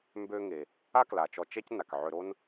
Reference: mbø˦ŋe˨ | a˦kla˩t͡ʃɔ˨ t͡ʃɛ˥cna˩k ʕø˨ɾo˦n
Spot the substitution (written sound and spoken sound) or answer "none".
none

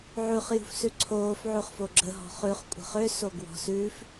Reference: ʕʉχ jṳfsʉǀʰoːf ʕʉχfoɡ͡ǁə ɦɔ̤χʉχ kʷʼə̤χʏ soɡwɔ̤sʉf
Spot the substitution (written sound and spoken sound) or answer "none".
none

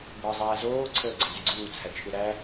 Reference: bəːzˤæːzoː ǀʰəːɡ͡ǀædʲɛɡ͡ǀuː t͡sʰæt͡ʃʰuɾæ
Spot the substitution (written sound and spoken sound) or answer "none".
none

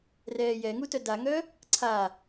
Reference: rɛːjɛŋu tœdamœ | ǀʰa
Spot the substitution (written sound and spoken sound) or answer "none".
m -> ŋ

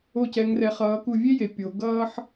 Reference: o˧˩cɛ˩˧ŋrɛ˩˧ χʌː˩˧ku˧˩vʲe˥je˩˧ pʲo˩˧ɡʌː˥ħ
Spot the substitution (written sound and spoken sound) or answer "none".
none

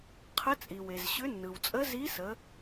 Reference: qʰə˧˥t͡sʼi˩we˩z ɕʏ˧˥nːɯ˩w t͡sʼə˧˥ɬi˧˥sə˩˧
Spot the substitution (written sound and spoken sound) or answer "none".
ɬ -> z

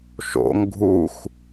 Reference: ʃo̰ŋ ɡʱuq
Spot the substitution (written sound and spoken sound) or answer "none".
q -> x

